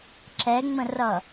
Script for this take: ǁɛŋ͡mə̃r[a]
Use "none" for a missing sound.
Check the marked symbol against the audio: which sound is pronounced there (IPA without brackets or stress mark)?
ʌ